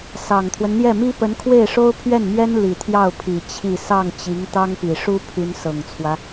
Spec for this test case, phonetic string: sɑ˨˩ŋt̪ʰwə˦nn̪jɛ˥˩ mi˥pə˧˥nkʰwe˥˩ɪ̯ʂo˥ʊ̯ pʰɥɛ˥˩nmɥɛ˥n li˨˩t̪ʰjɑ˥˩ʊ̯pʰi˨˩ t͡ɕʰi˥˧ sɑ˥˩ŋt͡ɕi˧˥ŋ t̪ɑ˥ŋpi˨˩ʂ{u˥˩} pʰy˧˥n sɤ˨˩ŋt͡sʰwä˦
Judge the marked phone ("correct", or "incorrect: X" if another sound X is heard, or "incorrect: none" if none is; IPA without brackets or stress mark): incorrect: u˥